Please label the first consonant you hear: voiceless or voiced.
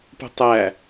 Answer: voiceless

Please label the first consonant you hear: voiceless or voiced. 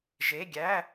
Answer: voiced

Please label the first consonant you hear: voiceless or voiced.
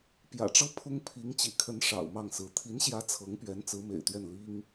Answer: voiceless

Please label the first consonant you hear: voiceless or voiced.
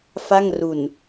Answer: voiceless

